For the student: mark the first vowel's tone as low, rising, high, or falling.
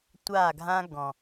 falling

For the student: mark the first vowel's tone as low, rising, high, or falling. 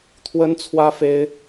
high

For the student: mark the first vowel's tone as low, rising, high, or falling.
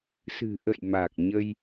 low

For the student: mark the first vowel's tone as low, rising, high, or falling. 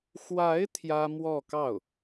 rising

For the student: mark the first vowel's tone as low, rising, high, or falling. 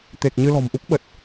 low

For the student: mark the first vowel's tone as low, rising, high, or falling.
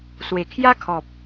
low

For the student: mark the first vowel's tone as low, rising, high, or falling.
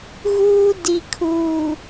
high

